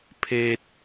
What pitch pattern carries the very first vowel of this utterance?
high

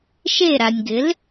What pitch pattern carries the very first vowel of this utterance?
falling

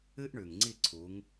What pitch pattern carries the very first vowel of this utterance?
high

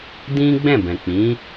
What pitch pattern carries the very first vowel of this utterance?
high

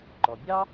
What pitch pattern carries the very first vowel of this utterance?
low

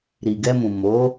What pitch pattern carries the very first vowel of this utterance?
low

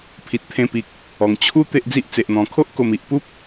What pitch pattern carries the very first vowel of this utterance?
low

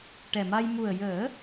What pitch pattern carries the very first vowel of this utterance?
low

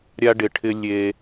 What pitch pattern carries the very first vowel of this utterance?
high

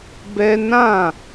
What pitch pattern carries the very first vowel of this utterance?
high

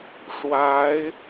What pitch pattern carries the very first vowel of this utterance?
rising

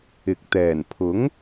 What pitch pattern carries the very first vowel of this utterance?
low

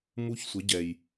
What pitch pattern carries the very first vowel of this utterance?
high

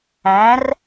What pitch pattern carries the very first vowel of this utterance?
rising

